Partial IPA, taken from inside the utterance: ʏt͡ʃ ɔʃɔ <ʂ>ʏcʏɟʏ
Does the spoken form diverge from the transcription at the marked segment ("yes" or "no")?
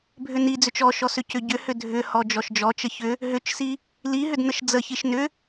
yes